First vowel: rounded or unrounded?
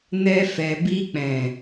unrounded